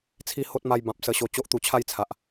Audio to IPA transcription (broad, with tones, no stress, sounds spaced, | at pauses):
t͡sʰ i˧ h o˦ t̚ m a˧ j b ã˨ p̚ s ə˧ ɕ o˧ t͡ɕ o˦ ʔ t̪ u˧ t͡ɕʰ a˥˧ j t͡sʰ a˨ ʔ